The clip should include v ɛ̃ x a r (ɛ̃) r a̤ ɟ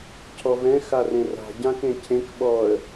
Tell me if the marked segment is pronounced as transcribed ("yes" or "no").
no